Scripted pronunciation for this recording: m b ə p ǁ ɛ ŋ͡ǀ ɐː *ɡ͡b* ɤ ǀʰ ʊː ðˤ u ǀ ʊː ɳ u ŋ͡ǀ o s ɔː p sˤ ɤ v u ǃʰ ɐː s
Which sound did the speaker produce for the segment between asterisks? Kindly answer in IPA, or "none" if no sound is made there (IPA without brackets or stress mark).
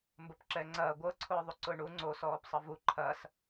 ɡʷ